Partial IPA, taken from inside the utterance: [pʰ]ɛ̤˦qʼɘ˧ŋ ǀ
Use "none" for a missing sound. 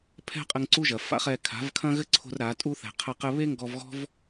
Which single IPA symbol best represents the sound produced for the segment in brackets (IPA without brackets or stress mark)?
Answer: pʰ